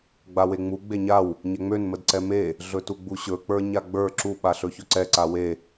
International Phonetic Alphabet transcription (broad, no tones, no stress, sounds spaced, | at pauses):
ɡ͡b a w e ŋ͡m u ɡ͡b e ɲ a w | ɲ ɛ ŋ͡m ø n m ə d ǀ ɛ m e | ɮ ɵ t u ɡ͡b u ɕ ɵ k͡p ə˞ ɲ a ɡ͡b ə˞ ǁ u ɓ a ɬ ɵ ç ʊ ǀ ɛ ǀ a w e